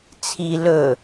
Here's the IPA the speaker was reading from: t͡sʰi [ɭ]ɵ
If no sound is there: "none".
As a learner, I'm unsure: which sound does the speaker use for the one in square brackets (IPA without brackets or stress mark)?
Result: l